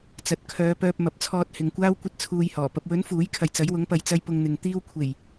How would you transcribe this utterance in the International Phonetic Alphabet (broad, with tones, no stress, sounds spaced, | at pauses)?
t͡s ɐ˨˥ t̚ kʰ œː˨˧ p œː˧ p̚ m ɐ˨ p̚ t͡sʰ ɔː˧ t̚ h ɪ˨ ŋ kʷ aː˥ w kʷ ɐ˥ t̚ t͡sʰ uː˧ j h ɔː˨˩ p ɐ˨ p̚ w ɵ˨˥ n f uː˨˥ j kʰ ɐ˨ j t͡s ɐ˨˥ j w ʊ˨˥ ŋ p ɐ˨ j t͡s ɐ˥ j p ʊ˧ ŋ n̪ ɪ˨ ŋ t̪ iː˧ w kʷʰ e˨˩ j